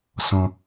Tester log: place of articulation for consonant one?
alveolar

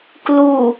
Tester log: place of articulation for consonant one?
velar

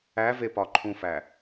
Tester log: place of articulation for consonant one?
labial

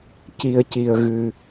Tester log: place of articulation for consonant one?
palatal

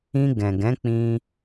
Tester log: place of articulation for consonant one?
velar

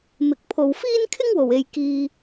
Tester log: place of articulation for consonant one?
labial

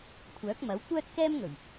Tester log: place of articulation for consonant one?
velar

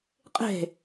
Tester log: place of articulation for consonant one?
uvular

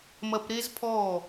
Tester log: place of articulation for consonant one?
labial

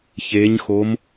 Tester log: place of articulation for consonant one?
palatal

